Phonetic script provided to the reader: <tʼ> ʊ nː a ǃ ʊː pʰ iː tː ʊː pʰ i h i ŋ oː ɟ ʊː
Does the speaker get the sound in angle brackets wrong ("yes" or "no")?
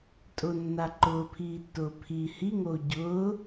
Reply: no